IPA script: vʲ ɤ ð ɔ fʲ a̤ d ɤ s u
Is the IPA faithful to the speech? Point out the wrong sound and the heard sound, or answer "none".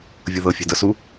ɔ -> ɤ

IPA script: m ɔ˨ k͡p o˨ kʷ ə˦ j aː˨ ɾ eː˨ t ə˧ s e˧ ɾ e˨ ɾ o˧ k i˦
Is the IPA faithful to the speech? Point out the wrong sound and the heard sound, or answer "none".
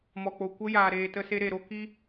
none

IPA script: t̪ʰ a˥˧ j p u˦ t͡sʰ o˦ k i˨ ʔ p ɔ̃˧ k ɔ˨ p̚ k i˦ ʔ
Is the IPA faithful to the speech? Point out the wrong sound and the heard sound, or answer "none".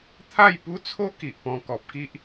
none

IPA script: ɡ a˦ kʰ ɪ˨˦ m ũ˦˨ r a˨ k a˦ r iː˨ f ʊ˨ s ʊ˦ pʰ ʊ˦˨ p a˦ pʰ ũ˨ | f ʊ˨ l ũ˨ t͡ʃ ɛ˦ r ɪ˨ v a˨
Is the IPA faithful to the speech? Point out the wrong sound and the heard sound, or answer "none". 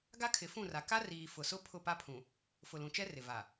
m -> f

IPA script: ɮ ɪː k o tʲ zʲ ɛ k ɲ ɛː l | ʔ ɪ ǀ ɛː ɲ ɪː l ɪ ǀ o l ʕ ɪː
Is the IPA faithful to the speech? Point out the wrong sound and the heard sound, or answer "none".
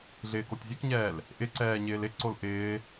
ʕ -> ʔ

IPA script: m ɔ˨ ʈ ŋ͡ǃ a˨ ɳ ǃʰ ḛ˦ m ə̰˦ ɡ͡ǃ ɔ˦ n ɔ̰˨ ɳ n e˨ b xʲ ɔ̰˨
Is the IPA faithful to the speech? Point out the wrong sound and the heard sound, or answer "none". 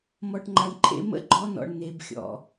none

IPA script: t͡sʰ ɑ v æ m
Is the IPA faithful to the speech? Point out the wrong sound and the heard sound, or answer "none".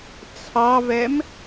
æ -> ɛ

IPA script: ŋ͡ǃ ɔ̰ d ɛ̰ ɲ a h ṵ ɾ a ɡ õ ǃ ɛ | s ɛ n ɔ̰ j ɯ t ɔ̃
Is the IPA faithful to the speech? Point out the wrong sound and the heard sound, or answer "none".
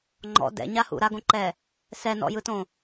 ɔ̃ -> õ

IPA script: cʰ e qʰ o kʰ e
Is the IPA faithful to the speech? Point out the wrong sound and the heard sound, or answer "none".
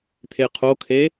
cʰ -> t̪ʰ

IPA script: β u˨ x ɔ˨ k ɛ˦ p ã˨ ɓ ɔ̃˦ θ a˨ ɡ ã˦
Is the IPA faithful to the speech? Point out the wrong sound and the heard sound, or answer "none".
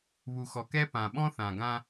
a˨ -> ã˨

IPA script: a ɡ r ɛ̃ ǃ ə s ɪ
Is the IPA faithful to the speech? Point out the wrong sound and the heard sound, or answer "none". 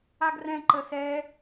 ɪ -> ɛ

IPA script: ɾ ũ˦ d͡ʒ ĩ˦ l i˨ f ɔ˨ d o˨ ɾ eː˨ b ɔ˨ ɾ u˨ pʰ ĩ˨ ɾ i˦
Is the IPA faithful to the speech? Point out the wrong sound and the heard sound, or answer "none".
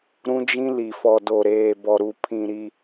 none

